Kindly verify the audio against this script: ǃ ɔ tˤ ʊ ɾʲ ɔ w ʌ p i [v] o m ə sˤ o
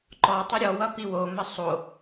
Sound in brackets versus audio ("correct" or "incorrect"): incorrect